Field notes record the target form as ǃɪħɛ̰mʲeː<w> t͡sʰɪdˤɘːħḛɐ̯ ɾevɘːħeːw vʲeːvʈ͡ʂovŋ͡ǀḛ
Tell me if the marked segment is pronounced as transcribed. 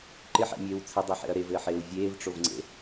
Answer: yes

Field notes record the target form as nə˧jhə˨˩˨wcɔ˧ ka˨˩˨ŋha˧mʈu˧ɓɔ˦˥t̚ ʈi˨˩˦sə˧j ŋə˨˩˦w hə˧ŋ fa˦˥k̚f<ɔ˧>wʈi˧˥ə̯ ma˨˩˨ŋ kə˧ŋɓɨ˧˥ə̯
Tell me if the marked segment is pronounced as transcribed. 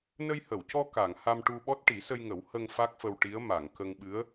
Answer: no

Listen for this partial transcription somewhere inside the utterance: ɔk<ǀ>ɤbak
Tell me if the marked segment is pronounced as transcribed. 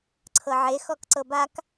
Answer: yes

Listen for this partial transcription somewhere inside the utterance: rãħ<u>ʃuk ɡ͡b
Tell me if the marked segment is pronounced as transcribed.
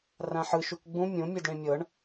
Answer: no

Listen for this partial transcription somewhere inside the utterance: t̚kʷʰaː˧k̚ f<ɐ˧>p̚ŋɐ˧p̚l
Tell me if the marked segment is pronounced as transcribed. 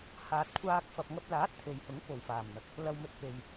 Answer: no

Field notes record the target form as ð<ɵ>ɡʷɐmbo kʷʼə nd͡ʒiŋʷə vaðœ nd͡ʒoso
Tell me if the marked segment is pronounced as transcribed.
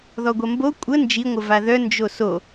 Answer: no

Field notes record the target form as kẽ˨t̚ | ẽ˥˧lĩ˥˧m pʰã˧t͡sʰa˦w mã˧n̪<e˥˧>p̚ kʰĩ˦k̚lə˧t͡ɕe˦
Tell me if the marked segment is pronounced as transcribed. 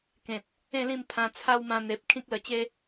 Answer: no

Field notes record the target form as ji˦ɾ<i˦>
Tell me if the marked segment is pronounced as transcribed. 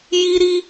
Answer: yes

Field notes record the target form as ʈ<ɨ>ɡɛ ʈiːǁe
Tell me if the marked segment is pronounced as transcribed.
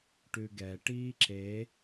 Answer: no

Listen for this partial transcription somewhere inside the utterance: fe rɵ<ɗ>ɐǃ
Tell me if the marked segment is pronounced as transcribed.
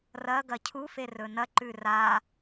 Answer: no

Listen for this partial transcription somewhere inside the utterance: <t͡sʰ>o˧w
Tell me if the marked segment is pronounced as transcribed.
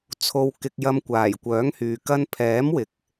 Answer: yes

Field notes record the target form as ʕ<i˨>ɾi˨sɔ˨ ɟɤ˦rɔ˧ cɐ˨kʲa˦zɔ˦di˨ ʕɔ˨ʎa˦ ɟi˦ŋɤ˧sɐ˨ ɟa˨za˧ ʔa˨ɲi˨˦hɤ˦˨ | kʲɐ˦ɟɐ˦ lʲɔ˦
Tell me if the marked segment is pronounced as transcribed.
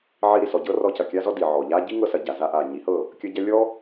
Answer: no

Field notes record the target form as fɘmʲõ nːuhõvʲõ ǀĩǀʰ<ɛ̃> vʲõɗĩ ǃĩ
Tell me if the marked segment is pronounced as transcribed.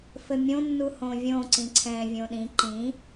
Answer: yes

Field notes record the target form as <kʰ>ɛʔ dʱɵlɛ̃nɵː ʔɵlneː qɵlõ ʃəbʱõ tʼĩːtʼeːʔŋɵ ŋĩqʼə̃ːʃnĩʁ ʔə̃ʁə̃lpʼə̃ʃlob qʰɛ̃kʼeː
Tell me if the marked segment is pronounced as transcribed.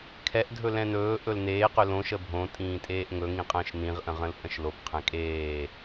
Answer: yes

